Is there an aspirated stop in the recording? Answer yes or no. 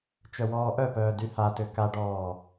no